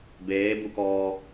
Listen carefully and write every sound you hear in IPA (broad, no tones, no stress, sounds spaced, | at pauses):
b eː b u k ɔː